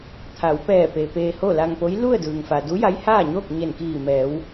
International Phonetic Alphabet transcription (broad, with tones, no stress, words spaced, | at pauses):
t̪ʰa˩˧wpɛː˧˩pe˩ peː˧ho˥˨la˧ŋpo˧˥j lu˥˨ə̯dɯː˩ŋfa˩ du˧˥ja˧˥jhaː˥˨ɲoː˥˨k̚ ɲe˧˩nkiː˧˩mɛː˩˧w